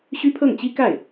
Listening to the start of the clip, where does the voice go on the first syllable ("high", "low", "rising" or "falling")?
high